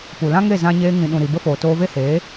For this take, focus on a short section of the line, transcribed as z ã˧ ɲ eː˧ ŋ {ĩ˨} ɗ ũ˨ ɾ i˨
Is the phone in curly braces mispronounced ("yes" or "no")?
no